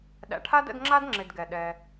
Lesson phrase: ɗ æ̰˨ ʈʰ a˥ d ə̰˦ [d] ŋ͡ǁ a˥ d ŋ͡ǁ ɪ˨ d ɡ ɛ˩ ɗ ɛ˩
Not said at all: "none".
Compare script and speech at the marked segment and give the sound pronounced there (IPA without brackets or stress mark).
d